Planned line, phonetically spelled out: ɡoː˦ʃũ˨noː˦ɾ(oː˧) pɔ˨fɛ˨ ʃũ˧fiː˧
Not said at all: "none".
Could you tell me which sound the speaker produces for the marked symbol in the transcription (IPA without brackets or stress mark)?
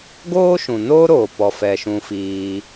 oː˨